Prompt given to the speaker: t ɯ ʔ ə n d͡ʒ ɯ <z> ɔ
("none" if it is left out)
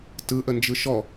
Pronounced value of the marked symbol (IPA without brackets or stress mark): ʃ